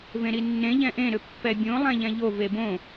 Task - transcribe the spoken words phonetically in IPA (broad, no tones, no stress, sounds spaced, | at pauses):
v ẽ ɾ i nː ẽ ʎ ɛ̃ ʔ ẽ ɾ ʏ pː ɛ bʲ õ lˠ ɛ̃ ʎ ɛ̃ ʎ o v e b õ